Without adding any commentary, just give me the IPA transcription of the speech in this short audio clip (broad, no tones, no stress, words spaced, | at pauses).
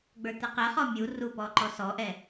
ɡ͡bə˞t̪ɛqɛχɔ mʲu rupɔǃɔ sɔʔɛ